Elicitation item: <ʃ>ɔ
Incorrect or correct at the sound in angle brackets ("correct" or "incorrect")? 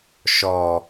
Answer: correct